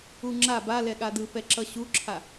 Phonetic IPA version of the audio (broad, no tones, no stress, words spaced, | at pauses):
uŋ͡ǁa ba lɛɠadɯ pɛǁʌɕuǁʰa